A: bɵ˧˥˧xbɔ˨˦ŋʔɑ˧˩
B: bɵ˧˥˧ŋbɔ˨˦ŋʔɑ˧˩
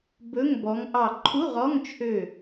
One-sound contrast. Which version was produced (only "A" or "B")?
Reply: B